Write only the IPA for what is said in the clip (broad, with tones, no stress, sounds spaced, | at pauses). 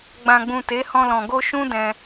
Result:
ɡ͡b ã˨ ɡ͡b ũ˨ t e˨˦ h ɔ̃˧ l ɔ̃˨ ɡ o˧ ʃ ũ˦ d ɛ̃˧